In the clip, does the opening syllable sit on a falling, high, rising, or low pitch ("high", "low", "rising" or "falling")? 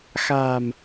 low